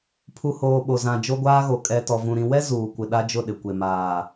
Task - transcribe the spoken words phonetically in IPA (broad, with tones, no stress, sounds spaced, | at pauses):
pʰ u˨ h oː˨ ɓ o˨ z ã˨ d͡ʒ o˦ ɡʷ aː˦ ɣ o˨ kʼ ɛ˨ t ɔ˨ v ũ˨ ɾ ĩ˨ w ɛ˦ z uː˨ kʷ ɪ˨ ɗ a˦ d͡ʒ ʊ˦˨ ɗ ɪ˨ kʷ e˨ m aː˨